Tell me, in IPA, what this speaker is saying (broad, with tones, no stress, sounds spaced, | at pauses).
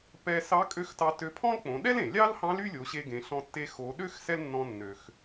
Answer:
p ɛ˧ s ɑ˧˥ kʼ ø˧˥ x t ɑ˧ t ø˧ pʰ ɔ̃˥ l k͡p õ˩˧ ɗ ɛ˥ l ẽ˩ lʲ ɑ˥ l h ɑ̃˧˥ l y˥ lʲ o˩˧ ɕ e˧ ɡ ẽ˩˧ ɬ ɔ̃˧ tː e˧ x o˩˧ ɗ ø˥ x s ɛ˥ l nː ɔ̃˧ nː ø˩ x